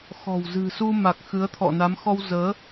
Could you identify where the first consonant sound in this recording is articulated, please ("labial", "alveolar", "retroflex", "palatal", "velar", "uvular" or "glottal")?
velar